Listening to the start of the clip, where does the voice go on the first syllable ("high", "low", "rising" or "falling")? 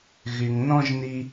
low